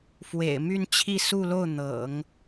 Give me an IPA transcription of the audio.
f w ḛ˨˩ ɪ̯ m y˥˧ n t͡ɕʰ i˥˧ s u˥˧ l o˥˩ ʊ̯ n̪ ɤ̰˨˩˦ ŋ

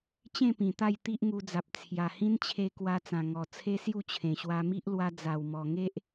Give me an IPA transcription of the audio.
t͡ɕ ẽ˥˧ p ĩ˨˩ t̪ a˥˧ j t̪ i˦ ʔ ŋ u˧ d͡z a˨ p̚ t͡sʰ j a˨˩ h ĩ˦ n t͡ɕʰ e˧ k w a˧ t͡s ã˨˩ ŋ ɔ˨˩ t͡sʰ e˦ s j u˥˧ t͡ɕʰ ẽ˨˩ ɕ w a˧ m i˦ ʔ l w a˧ d͡z a˨˩ w m ɔ˨˩ ŋ e˦ ʔ

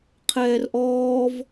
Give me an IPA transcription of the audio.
qʰ ɛː r ʔ ɔː v

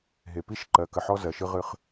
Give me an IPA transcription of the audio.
ɦ e˨ p i˦ ʃ ǃ ɜ˨˦ k ə˨ ħ ɔ˦ z ɜ˨ ʃ ɨ˦ ʁ ɨ˦ χ

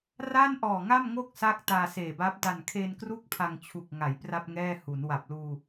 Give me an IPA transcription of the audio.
r a˥˩ n ʔ ɔː˨˩ ŋ a˥˩ m ŋ o˥˩ k̚ s a˥˩ k̚ t aː˧ s eː˨˩ b a˦˥ p̚ d a˨˩ n kʰ e˧ n k r u˥˩ k̚ pʰ a˧ ŋ t͡ɕʰ u˨˩ k̚ ŋ a˩˦ j p r a˥˩ p̚ ŋ ɛː˥˩ h u˩˦ n w a˨˩ p̚ l uː˧

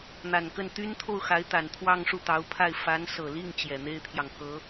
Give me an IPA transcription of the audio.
n̪ a˨˩ n k ə˥˩ n t̪ y˥ n t̪ʰ o˥˩ ʊ̯ x a˧˥ ɪ̯ t̪ a˨˩ n t̪ʰ w ɑ˥˧ ŋ ʂ u˥˩ t̪ ɑ˧˥ ʊ̯ pʰ a˥˩ ɪ̯ f a˧˥ n s ɤ˨˩ l i˥˩ ŋ t͡ɕ j ɛ˨˩ n̪ e˥ ɪ̯ t̪ʰ j ɑ˨ ŋ k ɤ˧˥

